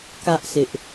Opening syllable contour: high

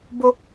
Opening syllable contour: high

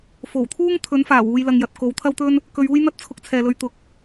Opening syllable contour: low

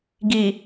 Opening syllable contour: low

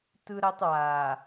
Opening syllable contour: high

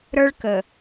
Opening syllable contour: high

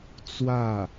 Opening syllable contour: falling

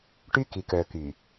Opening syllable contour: high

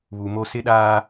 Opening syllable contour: low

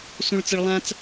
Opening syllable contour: low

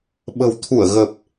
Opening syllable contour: low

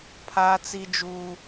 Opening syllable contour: high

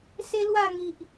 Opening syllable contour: high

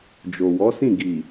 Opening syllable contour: low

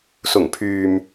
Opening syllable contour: low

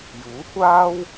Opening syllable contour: rising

